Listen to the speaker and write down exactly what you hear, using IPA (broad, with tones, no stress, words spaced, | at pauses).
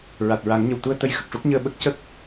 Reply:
ɹa˨˩t̚ɹa˨˩˦ŋɲə˨˩wt̪u˧ə̯ t̪ə˧˥jxə˨˩k̚ʂu˦˥k̚ɲəː˧ ɓə˦˥k̚ cə˦˥k̚